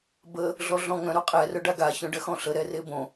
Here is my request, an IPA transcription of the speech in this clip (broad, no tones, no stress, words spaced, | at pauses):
bə | ɮɔɮɔ̃ŋœ̃ ɾoqʼɛ rœɖaɡa çœ̃ɖɜxɔ̃ɬə ɾɛrebõ